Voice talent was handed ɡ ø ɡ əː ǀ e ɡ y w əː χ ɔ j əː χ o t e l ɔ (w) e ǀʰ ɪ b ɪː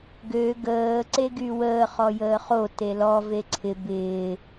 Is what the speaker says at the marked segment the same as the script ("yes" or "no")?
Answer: no